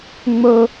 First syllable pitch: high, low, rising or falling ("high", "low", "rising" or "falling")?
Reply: high